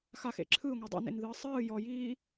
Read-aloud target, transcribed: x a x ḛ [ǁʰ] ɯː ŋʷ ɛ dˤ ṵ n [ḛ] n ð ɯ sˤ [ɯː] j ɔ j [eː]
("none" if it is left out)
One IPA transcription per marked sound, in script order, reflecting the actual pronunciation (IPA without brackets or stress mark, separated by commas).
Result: ǁʰ, ḛ, ɯː, iː